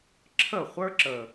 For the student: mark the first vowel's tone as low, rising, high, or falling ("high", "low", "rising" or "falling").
falling